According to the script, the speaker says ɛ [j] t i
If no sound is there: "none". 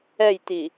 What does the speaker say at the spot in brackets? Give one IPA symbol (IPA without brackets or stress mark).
j